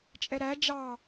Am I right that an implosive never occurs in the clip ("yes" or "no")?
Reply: yes